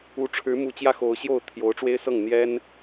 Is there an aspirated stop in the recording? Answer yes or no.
yes